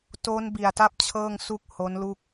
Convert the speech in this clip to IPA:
t o˦˥ n b i˨˩ a̯ t a˥˩ p̚ t͡ɕʰ ɤː˥˩ ŋ s u˥˩ k̚ h o˦˥ n l u˥˩ k̚

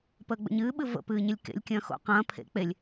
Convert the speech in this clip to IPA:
p əː ɡ͡b ə̰ ɲ ɨː ɓ ɨ v ə̰ p ɨː ɲ ɪ lʲ k ḛ lʲ kʲ ɐ̃ː x o̰ q ɐ̃ː pʰ ḛ k͡p e lʲ

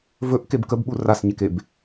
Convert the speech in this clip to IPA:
v ɵ ʔ k e b k ə b ɓ u r a s ɲ e k e b

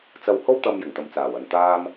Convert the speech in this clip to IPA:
t͡s ɐ˧ w h o˥ w t̪ ɐ˧ m j ɪ˨˩ ŋ t̪ ɐ˨ m t͡s aː˨˩ w ɐ˨ n t̪ aː˥ m

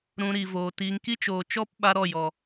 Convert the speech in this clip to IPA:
ɾ ũ˧ ɾ i˨ v oː˨ t iː˧ ŋ k i˦ t͡ʃ oː˨ t͡ʃ ɔ˦ p ɓ a˦ ɾ ɔ˦˨ j ɔ˨

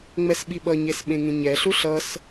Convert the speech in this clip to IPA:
ŋ͡m ɛ s ɓ i ɓ ʌ ɲ e s ɓ ẽ ŋ ẽ ɲ ɛ ɬ u ɬ ʌ s

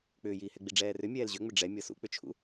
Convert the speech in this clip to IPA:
k͡p ʏː j iː h ɛ ɡ͡b i ɖ͡ʐ ɛː r ʏ mʲ ɛː l ʑ ʏ ŋ͡m ʏ ɖ͡ʐ ɛ mʲ ɤ s ṵ k͡p ʏ t͡ʃʰ ṵ

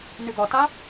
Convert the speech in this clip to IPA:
n ʏ ɡ ɒ t a

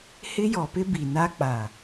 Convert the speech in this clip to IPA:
h ɪ˦ j ɔ˨ p ɪ˦ b i˨ n a˦ k͡p a˨

